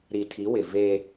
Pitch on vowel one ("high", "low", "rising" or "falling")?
low